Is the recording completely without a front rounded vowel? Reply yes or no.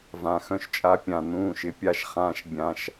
no